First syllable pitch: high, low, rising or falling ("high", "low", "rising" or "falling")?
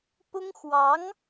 high